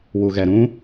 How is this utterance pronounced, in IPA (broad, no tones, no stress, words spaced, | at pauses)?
wuɣɛɾũ